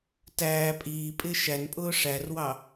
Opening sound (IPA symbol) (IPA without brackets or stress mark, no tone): t